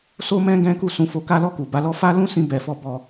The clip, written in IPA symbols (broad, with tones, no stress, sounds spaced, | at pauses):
s o˦ m ɛ̃˦ ɡ ɛ̃˦ k u˦˨ s ũ˨˦ f o˧ k a˦ l ɔ˦˨ k u˨ b a˨˦ l ɔ˦ f a˦ l ũ˦ s ĩ˧ b ɛ˧ f ɔ˦ b ɔ˦˨